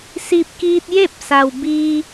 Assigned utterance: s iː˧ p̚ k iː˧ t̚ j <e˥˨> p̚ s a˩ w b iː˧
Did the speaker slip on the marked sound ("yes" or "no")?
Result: no